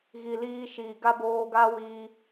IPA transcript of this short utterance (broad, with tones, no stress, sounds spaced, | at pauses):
ɣ i˨ l iː˧ ʃ iː˨ ɡ a˦ b oː˧ ɡ a˦ w iː˧